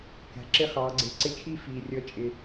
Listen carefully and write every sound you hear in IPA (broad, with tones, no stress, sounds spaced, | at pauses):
k æ̤˨ ǁ ɪ˥˧ χ ɑː˨˦ ɡ͡ǀ ɪː˨ ǀ ɪ˥˧ t͡ʃʰ i˥˧ f iː˨ rʲ ʌ˨˦ t͡ʃʼ ɪ˨